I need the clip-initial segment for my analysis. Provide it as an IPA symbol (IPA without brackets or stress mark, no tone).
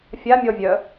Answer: fʲ